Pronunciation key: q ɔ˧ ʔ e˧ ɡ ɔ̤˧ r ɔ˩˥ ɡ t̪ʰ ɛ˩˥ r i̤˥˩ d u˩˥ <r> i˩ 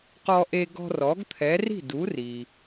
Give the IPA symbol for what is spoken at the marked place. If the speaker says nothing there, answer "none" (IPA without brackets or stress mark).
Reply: r